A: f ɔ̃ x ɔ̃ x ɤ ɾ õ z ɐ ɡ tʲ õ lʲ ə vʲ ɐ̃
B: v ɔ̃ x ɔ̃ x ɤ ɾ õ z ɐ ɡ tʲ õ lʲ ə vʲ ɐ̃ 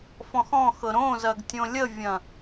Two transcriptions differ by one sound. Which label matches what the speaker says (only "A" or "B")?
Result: A